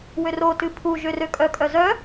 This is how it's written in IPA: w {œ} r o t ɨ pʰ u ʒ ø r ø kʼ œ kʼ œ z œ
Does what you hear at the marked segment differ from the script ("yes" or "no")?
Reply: yes